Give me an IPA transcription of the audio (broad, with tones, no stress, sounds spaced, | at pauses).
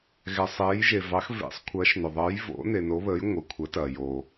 ɣ ɛ˩ sˤ eː˩˧ j ʒ e˩ v ɑ˩˧ x v ḛ˩˧ sˤ kʷʰ ɐː˩˧ ʃ n o˩ ðˤ əː˩˧ j v o̰˩˧ n e˩ n o˩˧ β əː˩˧ j ŋʷ ɐ˩˧ kʷʰ ə˩˧ t ɐː˩ j o˩